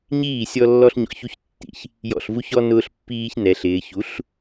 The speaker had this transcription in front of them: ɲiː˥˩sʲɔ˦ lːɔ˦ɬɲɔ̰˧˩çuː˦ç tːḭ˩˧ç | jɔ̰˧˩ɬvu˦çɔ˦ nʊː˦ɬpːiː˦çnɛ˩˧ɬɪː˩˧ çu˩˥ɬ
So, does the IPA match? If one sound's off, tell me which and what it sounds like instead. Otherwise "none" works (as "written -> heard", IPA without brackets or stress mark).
uː˦ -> u˦